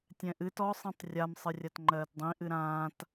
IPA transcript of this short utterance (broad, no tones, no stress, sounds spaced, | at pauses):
tʲ ɛ̃ ʔ ɨ t ɔ sˤ ĩ tˤ rʲ a m sˤ ɨ rʲ a t ŋ͡ǃ ɜː t dˤ ĩ ʔ ɨ ɾ ãː t